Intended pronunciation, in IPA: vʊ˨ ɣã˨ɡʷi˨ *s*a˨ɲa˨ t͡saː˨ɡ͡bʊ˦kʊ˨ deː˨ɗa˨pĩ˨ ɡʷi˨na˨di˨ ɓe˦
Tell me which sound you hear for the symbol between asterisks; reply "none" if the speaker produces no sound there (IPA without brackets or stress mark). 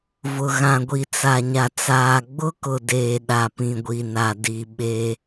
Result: t͡s